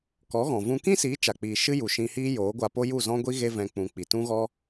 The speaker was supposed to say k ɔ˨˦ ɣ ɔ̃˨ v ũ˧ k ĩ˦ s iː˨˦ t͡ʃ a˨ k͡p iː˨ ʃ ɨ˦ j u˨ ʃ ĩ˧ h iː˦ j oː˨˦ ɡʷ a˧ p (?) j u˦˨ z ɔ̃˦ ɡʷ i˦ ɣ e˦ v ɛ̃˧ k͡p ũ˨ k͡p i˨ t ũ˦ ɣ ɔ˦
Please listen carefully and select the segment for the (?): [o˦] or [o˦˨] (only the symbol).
o˦